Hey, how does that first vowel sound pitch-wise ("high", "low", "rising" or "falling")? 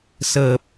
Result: low